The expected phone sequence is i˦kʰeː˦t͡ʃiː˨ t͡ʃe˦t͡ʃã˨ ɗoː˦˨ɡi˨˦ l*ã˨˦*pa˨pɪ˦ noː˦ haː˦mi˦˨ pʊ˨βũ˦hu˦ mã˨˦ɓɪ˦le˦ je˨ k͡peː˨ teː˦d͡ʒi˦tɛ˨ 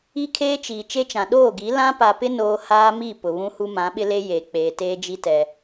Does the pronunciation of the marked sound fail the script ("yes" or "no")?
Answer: yes